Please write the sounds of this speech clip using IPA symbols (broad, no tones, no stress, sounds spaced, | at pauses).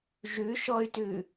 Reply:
ʒ ʉ ʃ ɔ y̯ t ʉ